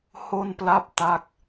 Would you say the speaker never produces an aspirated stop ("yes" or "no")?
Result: yes